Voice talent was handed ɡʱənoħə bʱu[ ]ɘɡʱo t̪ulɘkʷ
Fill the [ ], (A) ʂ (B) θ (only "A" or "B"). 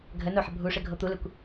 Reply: A